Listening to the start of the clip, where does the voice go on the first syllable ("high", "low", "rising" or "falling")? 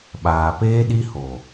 low